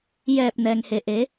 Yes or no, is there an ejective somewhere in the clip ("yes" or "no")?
no